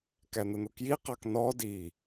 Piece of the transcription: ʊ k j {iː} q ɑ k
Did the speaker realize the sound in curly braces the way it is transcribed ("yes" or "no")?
no